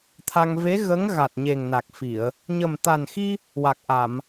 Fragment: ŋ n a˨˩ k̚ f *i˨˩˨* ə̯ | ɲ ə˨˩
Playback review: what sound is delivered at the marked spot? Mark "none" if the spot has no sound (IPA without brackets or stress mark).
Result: i˨˩˨